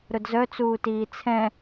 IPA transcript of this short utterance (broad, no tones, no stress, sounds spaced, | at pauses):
ɾ ʊ d z œ t͡s uː t iː t͡sʰ ɛ̃